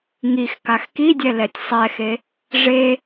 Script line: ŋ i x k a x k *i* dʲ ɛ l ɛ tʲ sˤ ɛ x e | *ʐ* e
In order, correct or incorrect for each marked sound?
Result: correct, correct

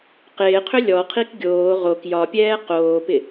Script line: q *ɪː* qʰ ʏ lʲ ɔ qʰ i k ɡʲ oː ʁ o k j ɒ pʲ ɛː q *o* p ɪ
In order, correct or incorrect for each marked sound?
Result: correct, incorrect: oː

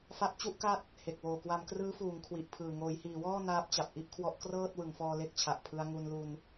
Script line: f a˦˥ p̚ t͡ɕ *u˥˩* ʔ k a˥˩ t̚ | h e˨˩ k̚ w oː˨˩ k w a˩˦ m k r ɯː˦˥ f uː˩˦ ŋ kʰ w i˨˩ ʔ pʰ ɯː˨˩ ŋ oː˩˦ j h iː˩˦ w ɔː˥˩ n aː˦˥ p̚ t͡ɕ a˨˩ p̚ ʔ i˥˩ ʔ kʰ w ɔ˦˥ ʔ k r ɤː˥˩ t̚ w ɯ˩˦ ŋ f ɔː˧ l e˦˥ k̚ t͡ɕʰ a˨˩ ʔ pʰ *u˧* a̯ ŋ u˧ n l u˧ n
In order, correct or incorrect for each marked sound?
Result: correct, incorrect: ɯ˧

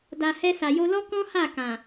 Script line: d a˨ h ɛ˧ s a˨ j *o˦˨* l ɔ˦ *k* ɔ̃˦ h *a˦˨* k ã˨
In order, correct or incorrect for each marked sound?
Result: incorrect: o˧, correct, correct

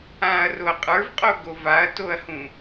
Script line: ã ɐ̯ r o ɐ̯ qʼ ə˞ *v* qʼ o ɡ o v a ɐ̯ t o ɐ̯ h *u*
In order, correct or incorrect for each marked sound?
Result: correct, incorrect: ũ

